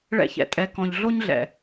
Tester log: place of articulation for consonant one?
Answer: retroflex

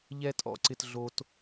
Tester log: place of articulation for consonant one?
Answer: palatal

